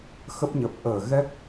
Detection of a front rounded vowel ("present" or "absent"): absent